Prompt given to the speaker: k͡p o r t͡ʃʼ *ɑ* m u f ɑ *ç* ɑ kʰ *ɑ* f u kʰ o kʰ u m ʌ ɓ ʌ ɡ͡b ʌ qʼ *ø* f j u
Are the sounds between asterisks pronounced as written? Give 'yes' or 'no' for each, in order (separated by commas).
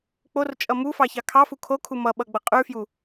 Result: no, yes, yes, no